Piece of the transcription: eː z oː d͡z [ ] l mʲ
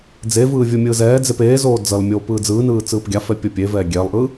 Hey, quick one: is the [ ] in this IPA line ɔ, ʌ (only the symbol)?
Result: ʌ